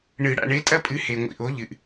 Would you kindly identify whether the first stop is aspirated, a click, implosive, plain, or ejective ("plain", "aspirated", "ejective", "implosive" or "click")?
ejective